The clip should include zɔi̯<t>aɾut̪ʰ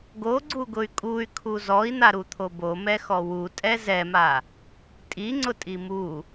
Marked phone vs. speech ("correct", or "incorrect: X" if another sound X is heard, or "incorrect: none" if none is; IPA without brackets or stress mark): incorrect: n̪